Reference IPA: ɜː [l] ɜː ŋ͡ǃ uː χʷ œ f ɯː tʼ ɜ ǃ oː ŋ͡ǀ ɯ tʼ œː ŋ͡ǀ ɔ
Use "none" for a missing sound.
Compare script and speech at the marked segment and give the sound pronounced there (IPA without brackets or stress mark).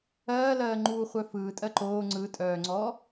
l